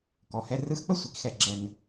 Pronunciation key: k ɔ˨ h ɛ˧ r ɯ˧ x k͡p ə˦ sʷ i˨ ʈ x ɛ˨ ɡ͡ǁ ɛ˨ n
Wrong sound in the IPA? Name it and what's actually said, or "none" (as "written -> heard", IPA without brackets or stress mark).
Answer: ʈ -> k